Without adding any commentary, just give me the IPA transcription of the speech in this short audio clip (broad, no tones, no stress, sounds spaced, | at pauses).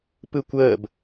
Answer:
p ɯ kʷ əː b